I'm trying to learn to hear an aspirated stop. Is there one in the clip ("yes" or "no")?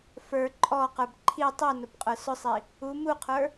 yes